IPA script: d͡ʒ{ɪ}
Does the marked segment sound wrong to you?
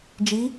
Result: yes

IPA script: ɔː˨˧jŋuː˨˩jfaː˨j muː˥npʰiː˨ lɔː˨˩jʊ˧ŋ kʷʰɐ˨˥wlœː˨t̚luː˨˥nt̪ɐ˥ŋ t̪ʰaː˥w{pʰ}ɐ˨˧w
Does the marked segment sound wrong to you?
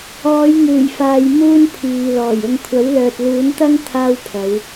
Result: no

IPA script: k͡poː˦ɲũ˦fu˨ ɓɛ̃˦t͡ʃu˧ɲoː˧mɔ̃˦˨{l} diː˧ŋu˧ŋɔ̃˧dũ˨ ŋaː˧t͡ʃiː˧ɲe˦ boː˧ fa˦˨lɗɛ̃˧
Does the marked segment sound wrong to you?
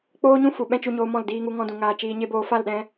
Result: no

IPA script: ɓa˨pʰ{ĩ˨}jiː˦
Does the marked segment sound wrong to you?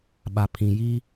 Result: no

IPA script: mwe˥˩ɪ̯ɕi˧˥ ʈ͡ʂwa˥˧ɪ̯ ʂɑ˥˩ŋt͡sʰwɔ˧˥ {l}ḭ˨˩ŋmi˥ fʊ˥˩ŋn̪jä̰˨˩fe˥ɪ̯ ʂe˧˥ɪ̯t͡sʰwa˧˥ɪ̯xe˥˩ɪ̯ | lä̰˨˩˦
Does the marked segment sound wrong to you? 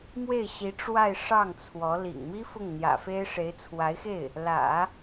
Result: no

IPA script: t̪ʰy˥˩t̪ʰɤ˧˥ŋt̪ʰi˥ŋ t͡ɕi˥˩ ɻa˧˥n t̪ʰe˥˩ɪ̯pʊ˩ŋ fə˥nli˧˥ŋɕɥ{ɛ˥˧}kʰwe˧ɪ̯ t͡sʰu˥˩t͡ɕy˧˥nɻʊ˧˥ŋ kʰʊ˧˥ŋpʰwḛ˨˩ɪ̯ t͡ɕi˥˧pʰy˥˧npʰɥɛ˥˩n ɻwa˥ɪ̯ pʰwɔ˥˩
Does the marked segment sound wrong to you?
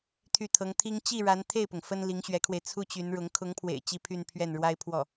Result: yes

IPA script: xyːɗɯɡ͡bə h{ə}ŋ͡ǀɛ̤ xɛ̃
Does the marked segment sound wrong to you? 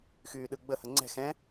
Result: no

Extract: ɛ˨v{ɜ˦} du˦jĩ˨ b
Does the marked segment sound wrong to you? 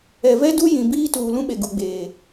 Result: yes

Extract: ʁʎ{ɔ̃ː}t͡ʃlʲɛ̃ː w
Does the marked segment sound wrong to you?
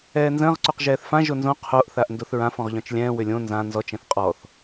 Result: yes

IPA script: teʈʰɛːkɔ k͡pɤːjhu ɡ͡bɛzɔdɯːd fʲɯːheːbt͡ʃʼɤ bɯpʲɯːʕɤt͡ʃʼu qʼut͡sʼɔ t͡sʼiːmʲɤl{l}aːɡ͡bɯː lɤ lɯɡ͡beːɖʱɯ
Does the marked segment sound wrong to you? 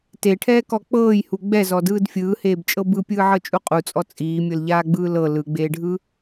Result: yes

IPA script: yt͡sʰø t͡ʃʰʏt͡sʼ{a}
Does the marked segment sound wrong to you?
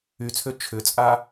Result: no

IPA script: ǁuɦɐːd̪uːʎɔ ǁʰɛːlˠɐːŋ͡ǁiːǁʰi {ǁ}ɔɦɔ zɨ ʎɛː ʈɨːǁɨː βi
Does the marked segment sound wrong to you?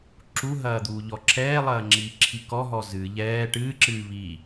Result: yes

